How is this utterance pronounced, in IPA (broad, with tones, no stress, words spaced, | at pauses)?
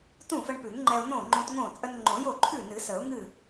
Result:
tũ˥˩fə˧ɳpʉ˨˩˦ŋŋ͡ǃɛ˧ʊ̯ nõ˥˩ŋ͡ǃõ˧tŋõ˥˩ t͡sʼə˧nŋ͡ǃõ˨˩˦jo˥˩ ǃʰʉ˥˩nɨ˨˩˦ sə˨˩˦ʊ̯ŋɨ˥˩